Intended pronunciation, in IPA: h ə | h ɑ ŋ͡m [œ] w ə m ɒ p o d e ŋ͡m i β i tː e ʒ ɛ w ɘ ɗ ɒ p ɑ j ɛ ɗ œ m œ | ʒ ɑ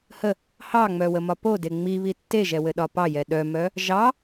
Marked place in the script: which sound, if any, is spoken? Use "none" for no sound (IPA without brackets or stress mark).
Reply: œ